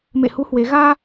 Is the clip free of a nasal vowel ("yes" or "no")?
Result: yes